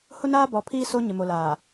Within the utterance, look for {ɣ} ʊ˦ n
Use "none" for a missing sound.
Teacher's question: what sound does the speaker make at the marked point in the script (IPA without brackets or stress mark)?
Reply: h